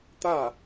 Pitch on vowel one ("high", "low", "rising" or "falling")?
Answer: falling